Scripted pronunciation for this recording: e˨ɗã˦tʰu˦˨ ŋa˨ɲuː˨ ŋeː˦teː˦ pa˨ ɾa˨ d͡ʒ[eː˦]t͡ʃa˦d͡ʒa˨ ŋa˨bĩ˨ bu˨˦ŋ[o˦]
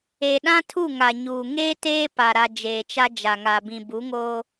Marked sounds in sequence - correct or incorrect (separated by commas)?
incorrect, correct